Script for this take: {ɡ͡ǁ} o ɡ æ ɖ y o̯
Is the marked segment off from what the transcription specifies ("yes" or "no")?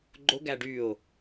yes